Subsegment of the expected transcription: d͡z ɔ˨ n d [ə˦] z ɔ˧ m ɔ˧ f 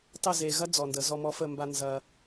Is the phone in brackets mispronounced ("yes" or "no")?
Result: yes